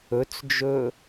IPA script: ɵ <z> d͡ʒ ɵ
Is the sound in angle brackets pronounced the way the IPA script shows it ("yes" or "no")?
no